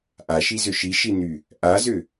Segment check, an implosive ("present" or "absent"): absent